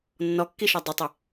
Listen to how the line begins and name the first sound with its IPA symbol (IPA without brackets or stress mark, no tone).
nː